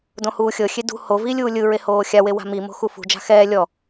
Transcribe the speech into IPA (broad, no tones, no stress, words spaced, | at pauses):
dõhuːxʲɤxʲe dṳ hovi lʲuːlʲɯɹe hoːxʲawe wa̤mimo̤ xufṳd͡ʒa̤ xɛː lʲɔ